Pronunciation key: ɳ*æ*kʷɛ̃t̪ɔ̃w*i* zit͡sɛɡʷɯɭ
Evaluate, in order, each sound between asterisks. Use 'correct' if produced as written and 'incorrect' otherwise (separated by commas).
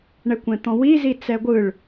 incorrect, correct